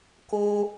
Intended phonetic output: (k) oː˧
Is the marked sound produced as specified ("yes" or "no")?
yes